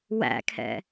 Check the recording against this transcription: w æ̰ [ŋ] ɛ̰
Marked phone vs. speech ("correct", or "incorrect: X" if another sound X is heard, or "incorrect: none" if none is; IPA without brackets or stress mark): incorrect: kʰ